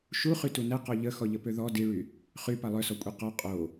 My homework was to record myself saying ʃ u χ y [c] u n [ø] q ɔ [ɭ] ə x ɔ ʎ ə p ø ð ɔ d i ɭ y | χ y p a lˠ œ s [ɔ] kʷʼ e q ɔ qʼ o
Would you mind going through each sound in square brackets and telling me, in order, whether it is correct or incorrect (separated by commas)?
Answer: incorrect, incorrect, incorrect, correct